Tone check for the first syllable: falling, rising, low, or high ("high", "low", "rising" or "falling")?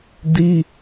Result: high